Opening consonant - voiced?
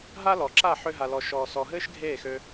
yes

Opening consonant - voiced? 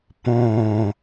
no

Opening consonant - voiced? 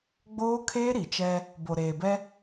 yes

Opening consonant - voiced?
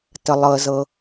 no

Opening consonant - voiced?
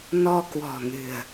yes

